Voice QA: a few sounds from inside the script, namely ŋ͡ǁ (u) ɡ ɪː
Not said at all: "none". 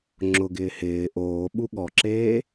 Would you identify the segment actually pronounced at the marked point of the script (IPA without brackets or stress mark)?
ʊ